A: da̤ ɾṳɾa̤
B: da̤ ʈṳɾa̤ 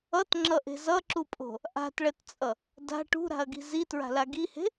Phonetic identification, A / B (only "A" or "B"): B